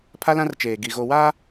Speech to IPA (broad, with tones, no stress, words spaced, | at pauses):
pʰa˦lã˦rt͡ʃeː˨ɡi˨ ɣo˨waː˦